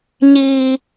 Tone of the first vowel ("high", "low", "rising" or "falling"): low